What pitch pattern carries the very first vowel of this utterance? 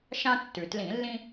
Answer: high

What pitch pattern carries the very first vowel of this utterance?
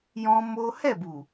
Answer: high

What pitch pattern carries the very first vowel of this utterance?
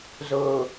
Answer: low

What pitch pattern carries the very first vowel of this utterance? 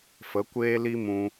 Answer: rising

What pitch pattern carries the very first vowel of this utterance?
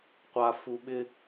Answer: low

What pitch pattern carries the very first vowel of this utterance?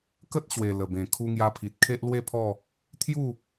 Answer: high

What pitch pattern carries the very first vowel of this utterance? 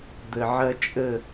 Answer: low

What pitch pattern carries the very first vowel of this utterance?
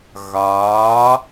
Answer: rising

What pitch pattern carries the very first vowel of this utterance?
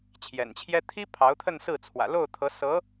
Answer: low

